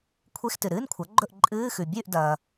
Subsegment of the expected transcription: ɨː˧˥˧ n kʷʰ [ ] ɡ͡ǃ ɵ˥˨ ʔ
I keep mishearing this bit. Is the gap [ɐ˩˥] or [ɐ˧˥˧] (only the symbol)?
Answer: ɐ˩˥